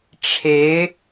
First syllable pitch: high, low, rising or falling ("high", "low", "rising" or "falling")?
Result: rising